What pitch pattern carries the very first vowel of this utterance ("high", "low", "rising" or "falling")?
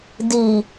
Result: low